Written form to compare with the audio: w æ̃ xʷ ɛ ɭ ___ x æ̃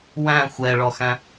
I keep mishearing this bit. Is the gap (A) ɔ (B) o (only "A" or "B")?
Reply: A